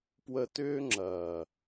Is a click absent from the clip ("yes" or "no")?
no